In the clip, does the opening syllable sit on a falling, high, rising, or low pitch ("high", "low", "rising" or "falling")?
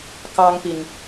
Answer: high